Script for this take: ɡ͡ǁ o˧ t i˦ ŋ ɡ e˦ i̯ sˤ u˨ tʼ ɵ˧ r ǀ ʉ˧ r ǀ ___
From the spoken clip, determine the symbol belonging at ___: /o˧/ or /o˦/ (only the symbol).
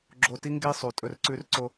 o˧